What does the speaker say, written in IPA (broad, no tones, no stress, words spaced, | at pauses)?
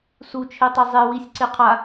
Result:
sut͡ʃʰetˤi zˤe wisʲǀe qʰa